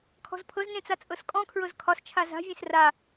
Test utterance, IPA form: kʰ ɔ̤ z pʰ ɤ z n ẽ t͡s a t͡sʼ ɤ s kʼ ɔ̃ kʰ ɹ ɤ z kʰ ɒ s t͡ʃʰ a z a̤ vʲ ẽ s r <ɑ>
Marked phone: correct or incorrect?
incorrect